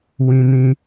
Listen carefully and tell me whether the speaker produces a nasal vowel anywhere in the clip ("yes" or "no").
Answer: yes